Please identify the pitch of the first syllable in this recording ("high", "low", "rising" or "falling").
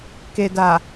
low